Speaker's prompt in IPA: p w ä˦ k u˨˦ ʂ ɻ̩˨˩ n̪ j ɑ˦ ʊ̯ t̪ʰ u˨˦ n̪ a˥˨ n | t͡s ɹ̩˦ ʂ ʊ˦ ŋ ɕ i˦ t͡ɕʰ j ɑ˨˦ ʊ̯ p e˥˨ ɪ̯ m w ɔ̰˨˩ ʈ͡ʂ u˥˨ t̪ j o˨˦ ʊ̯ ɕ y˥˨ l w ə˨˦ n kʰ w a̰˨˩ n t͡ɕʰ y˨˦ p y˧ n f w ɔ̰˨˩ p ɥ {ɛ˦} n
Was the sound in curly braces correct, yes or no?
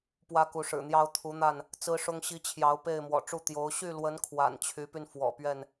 no